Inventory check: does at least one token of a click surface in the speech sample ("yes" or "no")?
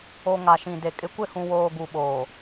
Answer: no